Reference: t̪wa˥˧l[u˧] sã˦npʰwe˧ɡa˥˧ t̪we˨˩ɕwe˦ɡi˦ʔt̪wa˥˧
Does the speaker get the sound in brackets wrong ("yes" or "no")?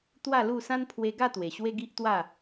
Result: yes